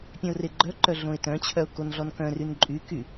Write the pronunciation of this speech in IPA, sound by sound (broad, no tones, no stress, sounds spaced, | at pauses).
pʲ œ̃ ʊ̯ r e ɡ͡ǃ œ ǃ œ ɮ õ ɪ̯ t œ̃ t͡ɕʰ œ ʊ̯ k o n ɮ ɔ n k œ̃ r y n ǃʼ y k y